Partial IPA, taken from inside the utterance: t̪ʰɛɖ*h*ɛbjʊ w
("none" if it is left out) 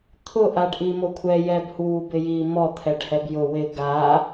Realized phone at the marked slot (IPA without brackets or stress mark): h